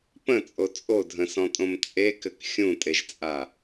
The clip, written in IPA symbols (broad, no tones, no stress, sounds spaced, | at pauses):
p ə̃ t͡sʼ o t͡sʼ o dʱ ə̃ s ɔ̃ tʼ õ m t͡sʼ e k ɘ k xʲ ũ tʼ e ʒ t͡sʼ a